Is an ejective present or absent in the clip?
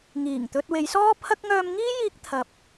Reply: absent